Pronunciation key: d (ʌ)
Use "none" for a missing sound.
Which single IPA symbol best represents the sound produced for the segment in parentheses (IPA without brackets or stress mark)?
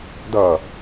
ʌ